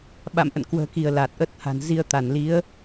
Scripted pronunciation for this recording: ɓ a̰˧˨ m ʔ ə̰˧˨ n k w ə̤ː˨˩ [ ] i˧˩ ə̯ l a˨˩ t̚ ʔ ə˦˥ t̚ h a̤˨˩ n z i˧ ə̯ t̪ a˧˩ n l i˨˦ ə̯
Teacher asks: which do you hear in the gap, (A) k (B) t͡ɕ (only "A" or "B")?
A